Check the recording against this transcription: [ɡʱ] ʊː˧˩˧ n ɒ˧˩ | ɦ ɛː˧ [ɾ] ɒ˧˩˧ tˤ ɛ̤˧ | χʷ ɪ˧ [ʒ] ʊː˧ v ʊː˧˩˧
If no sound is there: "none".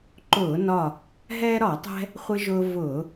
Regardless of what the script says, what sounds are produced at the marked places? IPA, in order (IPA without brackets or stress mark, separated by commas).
ǃ, ɾ, ʒ